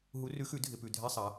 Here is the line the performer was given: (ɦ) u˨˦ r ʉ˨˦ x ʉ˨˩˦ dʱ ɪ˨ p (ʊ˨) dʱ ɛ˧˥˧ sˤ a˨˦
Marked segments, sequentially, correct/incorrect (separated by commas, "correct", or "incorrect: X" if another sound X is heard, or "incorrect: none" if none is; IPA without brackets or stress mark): correct, incorrect: ʉ˨